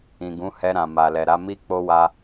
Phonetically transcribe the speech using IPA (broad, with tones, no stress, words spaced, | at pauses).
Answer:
ĩ˨ɡũ˨˦hɛ˧ɾã˨ ma˨lɛ˨ɾa˨˦ mi˦ k͡po˦wa˧